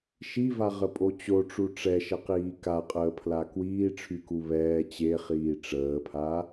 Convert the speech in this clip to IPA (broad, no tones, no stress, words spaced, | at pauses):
ʃivaʁəpʼo t͡ɕoʈ͡ʂu ʈ͡ʂɛʃəqiː kaqʼəːpʰla kwiːʈ͡ʂʰyku βɛː t͡ɕeχiː ʈ͡ʂəːpʰa